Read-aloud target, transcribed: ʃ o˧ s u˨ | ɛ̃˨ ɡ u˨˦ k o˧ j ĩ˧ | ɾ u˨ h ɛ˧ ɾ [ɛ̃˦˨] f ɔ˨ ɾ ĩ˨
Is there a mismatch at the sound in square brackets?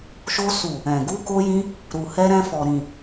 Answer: yes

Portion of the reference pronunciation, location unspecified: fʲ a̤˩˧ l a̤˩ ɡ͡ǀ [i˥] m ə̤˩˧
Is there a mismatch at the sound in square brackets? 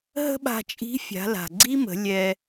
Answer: no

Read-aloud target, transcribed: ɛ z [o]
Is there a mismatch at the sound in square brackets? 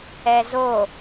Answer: no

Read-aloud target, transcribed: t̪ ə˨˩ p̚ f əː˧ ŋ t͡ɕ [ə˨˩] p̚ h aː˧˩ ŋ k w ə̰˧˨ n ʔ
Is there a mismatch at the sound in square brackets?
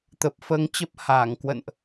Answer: yes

